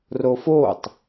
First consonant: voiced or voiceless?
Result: voiced